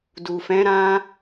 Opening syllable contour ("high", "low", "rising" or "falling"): low